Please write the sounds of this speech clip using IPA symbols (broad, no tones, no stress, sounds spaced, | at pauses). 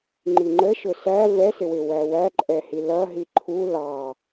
ŋ͡ǃ i ŋ͡ǃ ə ʃ ʊ s æ v ɛ s ɪ w ɪ w æ w æ ǃʼ ɛ h i l ʌ ɦ i ǃʰ u l ɑ